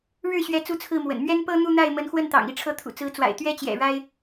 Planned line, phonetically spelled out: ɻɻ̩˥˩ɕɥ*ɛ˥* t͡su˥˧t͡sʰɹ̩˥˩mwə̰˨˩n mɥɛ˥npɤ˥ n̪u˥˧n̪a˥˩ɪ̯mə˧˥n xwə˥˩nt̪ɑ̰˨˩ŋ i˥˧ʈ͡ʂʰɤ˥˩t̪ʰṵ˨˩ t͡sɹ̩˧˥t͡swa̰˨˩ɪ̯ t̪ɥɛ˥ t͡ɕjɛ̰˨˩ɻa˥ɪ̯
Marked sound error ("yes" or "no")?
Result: yes